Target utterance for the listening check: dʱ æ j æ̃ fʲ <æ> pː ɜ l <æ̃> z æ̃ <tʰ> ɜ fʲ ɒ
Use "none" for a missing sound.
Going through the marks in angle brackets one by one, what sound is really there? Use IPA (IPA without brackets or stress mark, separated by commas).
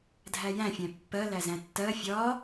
æ̃, æ, tː